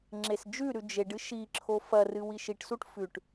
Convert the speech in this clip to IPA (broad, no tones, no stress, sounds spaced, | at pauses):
ŋ͡ǁ e s d͡ʒ ʉ ɾ ʉ d͡ʒ e ɖ ɨ ʃ i ǁʰ o f ɐ r ɨ w i ʃ i ʈ s u ʈ f ʉ ʈ